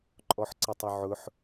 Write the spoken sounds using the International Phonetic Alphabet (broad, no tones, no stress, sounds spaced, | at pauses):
ǃʼ ɔ ħ ǀ ə tˤ ʊ ʕ ʊ ħ